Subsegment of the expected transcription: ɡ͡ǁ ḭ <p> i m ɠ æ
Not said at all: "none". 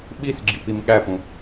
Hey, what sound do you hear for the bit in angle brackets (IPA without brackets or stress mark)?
p